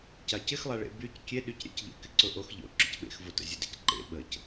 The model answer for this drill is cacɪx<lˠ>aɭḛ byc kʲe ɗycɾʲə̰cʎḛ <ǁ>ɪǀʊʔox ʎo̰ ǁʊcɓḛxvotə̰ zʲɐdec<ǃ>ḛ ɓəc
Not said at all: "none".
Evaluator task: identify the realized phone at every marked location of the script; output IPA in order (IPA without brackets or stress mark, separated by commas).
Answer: lˠ, k, ǃ